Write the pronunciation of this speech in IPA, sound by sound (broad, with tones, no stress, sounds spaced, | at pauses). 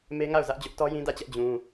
m e˦ ŋ a˦˨ ʊ̯ z ä˦ ʔ d͡ʑ ʊ˦ ʔ t ɔ˦ j ĩ˦ d ä˦˨ t͡ɕ ɛ˦ ʔ d͡ʑ ũ˦